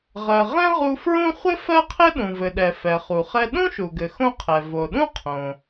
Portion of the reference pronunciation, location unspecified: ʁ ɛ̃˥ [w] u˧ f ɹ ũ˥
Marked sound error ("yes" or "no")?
yes